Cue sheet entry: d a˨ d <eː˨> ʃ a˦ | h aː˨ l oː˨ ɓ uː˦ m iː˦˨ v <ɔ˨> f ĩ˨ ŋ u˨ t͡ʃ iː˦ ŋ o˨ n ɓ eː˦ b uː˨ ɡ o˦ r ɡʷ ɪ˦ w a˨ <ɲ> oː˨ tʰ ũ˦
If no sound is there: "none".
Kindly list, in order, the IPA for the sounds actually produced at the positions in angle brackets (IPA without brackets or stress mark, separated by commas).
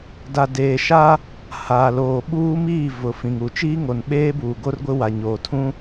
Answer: eː˨, ʊ˨, ɲ